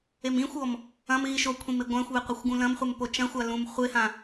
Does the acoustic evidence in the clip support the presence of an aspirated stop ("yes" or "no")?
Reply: yes